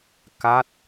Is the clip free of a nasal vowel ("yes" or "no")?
yes